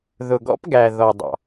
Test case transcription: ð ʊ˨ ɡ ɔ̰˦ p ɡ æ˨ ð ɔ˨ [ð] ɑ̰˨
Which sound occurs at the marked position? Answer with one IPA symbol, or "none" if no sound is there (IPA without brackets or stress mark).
dˤ